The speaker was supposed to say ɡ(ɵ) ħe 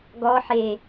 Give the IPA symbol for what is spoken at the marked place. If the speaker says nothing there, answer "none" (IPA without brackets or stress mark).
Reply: ɔ